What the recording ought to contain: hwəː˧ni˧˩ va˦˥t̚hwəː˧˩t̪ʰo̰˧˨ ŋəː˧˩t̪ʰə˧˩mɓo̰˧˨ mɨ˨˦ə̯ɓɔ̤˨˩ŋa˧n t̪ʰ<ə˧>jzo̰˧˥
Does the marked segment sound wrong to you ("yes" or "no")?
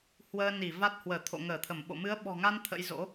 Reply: yes